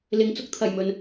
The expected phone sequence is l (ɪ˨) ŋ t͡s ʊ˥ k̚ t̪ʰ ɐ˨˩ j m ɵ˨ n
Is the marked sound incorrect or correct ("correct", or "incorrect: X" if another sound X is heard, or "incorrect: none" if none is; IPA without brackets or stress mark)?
correct